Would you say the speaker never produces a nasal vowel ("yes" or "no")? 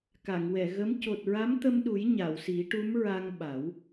yes